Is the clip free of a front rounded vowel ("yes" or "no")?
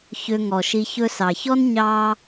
no